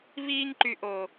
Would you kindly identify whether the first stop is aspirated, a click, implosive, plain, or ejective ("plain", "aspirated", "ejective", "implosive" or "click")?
click